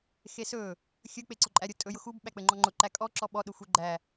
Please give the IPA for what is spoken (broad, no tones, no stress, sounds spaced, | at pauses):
x e s ɵ | xʲ ɵ k͡p e ǀ ʊ ǃʼ æ ɾʲ ʊ tʼ ɵ j ʊ x u b ɓ æ k͡p ɘ ŋ͡ǃ ɔ ŋ͡ǃ ʊ ǃ æ kʼ ɔ ǁ ɔ ɓ ɔ ɗ ʊ xʷ e ɡ͡ǃ æ